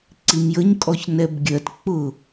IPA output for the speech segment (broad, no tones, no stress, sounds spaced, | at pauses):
ǀ i m j ə ɲ kʼ ɔ ç n ɛ b ɡʲ ɜ t k͡p ʊ